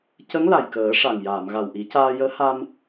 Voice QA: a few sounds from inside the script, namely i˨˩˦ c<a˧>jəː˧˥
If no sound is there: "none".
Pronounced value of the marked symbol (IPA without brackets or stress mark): aː˧